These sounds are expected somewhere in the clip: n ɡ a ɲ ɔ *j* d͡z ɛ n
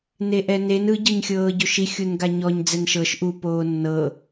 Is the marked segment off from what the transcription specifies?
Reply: yes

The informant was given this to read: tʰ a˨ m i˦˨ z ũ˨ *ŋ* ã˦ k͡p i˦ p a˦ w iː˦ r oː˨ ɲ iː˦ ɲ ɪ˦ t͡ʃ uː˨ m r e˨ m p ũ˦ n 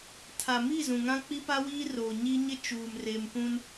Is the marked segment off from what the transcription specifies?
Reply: no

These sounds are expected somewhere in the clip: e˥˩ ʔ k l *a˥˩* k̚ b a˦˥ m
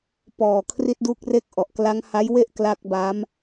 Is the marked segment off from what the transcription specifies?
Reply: yes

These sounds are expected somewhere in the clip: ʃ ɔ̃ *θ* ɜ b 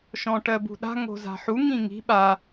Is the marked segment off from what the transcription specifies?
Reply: yes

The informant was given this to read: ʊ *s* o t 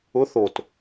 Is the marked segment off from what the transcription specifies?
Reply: yes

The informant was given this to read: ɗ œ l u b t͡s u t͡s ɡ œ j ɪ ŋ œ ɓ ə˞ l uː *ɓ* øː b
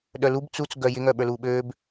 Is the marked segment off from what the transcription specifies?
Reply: no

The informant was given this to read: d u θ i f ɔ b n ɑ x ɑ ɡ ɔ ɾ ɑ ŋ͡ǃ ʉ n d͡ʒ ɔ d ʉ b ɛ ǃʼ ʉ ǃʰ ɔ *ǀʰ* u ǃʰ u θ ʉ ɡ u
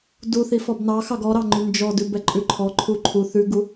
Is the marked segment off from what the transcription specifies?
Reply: yes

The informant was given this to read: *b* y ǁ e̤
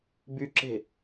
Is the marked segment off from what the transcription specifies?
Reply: no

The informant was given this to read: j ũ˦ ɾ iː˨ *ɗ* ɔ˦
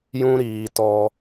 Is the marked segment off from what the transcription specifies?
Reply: yes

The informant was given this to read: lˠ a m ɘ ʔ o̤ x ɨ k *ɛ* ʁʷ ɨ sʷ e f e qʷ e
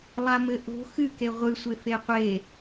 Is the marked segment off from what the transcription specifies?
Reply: yes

